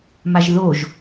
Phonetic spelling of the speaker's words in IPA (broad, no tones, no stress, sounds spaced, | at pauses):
m a ʒ ð o ʒ